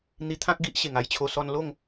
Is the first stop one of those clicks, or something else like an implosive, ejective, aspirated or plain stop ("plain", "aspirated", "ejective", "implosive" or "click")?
aspirated